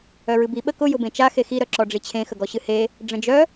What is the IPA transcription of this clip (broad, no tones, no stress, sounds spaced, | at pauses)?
œ ɹ ɨ b i ɓ ə k ʊ j ʊ b ẽ t͡ʃ a x e x i ɾ œ ǁ ɔ ɖ͡ʐ i t͡ɕʰ ẽ x ə ɡ ɔ ɕ ɨ h e | ɖ͡ʐ ə̃ d͡ʒ œ